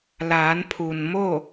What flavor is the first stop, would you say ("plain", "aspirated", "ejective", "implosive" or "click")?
aspirated